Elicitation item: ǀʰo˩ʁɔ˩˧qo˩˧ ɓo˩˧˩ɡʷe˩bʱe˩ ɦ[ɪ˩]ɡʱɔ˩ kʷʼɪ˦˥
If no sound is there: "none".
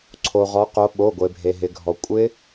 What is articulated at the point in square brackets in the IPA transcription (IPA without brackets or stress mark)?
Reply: ɪ˩